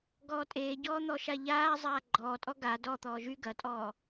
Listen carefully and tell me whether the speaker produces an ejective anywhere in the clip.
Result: yes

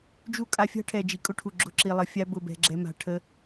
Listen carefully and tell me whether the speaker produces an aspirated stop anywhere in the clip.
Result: yes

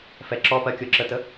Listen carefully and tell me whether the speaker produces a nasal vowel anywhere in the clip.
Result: no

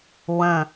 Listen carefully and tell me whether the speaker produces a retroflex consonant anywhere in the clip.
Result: no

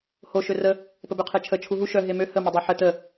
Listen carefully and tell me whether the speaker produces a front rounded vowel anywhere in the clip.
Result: yes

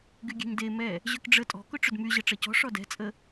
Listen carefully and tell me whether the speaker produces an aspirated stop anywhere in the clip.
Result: no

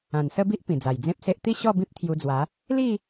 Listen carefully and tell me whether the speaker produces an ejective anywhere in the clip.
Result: no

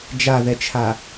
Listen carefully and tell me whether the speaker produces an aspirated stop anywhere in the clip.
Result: yes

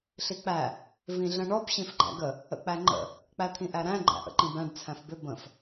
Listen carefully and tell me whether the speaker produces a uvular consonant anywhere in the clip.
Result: no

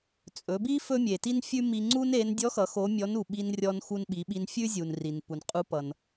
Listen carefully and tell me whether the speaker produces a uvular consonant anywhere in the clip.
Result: yes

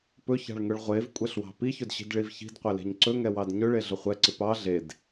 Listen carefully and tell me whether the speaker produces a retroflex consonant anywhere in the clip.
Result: yes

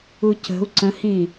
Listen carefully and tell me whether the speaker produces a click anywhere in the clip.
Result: yes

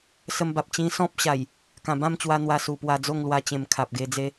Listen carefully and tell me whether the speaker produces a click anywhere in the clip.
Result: no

